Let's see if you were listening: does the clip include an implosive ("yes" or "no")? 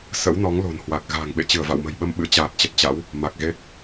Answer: yes